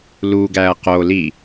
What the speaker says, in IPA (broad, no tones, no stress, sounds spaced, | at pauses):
l u ɡ æ ɐ̯ q o l i